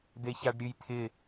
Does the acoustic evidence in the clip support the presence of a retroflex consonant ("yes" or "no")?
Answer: yes